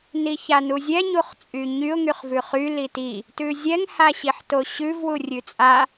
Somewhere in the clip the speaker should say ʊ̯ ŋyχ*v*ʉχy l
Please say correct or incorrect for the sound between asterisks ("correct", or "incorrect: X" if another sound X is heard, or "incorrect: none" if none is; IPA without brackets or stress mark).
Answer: correct